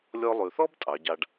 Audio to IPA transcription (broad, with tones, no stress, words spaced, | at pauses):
lʲɔ˧lˠʉ˩θɔ˥b tʼɑ˩˧ɟɑ˧ɖ